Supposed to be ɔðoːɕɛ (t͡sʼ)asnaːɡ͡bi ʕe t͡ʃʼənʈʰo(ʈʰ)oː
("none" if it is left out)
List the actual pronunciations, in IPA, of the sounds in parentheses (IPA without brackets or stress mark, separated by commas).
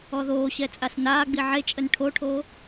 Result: t͡sʼ, ʈʰ